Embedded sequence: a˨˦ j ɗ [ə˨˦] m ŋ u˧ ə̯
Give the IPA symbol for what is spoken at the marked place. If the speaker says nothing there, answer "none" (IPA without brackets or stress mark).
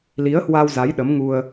ə˨˦